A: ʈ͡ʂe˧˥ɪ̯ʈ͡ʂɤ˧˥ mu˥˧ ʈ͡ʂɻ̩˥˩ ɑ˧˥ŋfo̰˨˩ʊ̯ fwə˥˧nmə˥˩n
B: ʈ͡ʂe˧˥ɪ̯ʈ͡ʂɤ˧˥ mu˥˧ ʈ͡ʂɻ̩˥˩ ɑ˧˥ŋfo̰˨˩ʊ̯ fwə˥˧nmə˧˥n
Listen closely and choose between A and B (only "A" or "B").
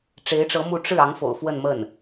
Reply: A